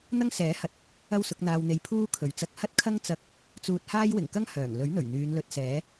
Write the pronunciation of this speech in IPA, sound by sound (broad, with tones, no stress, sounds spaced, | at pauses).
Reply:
n̪ ɐ˥ ŋ s ɛː˨˥ h ɐ˨˥ t̚ | ɐ˥ w s ʊ˨˥ k̚ n̪ aː˨ w n̪ e˨ j pʰ uː˥ kʰ ɵ˨˩ ɥ t͡s ɐ˧ k̚ h ɐ˥ t̚ kʰ ɐ˥ ŋ t͡s ɐ˧ k̚ | t͡s uː˧ t̚ h aː˥ j w ɪ˨˩ ŋ k ɐ˥ ŋ h œː˨˩ ŋ l ɵ˨˥ ɥ n̪ ɵ˨˩ ɥ n̪ yː˨˧ n l ɵ˧ t̚ s ɛː˨˥